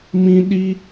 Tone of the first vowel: high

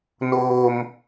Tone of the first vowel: high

